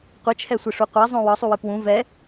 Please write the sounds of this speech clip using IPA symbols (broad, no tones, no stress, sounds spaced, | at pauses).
qʷ ɨ t͡ʃʰ ɛ sʷ ɨ ʂ u qʷ ɛ zˤ õ w ɒ sˤ u w ɨ p w ũ v ɛ